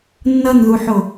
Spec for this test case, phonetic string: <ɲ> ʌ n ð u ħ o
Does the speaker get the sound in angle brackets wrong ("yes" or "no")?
yes